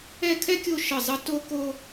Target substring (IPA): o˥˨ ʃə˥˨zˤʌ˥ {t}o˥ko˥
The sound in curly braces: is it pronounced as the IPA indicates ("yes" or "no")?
yes